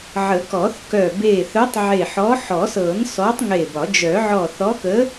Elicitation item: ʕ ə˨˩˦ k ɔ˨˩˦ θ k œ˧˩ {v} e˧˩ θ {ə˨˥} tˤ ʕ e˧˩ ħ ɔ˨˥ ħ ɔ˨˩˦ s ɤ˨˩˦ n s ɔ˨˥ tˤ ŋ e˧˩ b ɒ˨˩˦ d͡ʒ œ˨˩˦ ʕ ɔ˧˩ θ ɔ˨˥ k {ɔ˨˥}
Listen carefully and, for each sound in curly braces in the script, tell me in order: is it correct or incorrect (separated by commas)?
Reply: incorrect, incorrect, incorrect